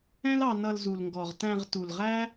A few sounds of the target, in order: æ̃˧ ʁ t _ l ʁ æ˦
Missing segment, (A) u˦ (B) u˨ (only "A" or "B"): B